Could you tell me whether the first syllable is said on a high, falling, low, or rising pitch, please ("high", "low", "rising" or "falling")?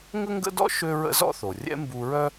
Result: high